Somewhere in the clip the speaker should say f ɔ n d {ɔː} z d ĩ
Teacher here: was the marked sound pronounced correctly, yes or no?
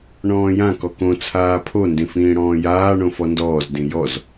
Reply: yes